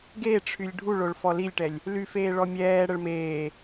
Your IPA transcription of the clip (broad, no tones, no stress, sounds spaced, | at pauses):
ɡ e ʈ͡ʂʰ y lʲ ɖʱ u ɭ o ɭ f ɔ l i lʲ ʈ ɛ lʲ | l y f eː ɭ ɔ mʲ ɛː ɽ ə ɭ m eː